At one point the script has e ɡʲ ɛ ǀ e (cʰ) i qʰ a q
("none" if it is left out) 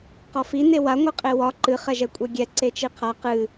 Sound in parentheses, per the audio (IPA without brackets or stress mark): t͡ʃ